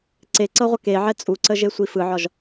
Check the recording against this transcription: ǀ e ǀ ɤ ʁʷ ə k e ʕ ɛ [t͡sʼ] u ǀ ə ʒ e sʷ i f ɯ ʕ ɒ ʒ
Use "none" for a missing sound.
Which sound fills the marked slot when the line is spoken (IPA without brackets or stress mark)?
t͡sʼ